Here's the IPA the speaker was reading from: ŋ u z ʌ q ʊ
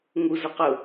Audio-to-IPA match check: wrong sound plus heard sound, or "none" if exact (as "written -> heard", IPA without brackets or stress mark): none